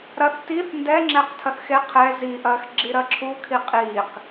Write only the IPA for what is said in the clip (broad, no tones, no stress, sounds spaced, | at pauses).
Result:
ɾ ɐ θ t i θ n d ɛ ŋ͡ǁ ɛ q tʰ ɐ θ x e qʰ ɛ z i ʔ ɐː x ɡ͡ǁ i ɾ ɐ ǁʰ u kʰ i qʼ iː q